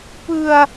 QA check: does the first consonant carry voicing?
no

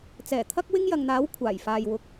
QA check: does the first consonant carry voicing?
no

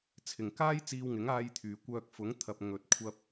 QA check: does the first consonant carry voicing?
no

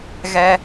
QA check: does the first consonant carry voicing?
yes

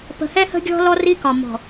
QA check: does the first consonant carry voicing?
no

